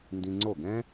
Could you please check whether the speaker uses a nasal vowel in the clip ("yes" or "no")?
yes